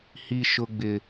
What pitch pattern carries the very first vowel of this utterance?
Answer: high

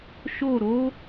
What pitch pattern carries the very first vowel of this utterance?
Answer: falling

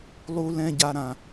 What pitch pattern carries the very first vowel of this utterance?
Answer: high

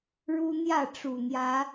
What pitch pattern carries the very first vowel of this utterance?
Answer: high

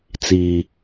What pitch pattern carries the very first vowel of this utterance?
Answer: low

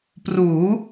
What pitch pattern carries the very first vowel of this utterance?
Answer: rising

